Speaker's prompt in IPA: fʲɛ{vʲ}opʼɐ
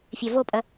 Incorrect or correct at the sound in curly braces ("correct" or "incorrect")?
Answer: incorrect